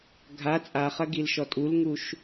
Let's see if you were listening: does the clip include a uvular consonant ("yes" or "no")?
yes